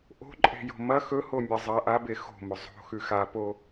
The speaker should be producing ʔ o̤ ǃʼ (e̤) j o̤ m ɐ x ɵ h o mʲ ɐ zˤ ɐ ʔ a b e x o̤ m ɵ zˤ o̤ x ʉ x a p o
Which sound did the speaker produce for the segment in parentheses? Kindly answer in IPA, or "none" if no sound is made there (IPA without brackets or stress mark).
e̤